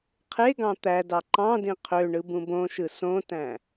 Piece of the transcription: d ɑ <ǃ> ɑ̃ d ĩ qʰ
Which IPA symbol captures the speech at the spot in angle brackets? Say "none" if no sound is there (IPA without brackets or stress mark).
ǃ